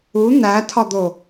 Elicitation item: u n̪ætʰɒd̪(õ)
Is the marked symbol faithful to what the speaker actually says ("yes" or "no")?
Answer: no